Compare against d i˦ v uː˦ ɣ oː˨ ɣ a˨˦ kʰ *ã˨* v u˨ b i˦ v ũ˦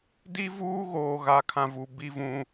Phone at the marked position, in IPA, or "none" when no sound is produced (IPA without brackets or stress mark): ã˨